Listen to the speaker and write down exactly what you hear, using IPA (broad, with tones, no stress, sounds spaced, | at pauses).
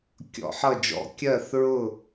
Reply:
kʲ ɔ̰˧˩˧ ħ ʌ˦˨ d͡ʒ ɔ̰˧˩˧ kʲ ɜ˦˨ θ ɹ ʊ˦˨